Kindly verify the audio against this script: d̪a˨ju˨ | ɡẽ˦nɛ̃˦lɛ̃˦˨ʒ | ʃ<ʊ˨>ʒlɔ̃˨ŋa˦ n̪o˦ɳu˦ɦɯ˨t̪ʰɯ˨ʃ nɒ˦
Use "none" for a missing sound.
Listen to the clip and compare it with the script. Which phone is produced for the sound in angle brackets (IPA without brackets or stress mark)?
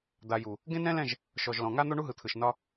ɔ˨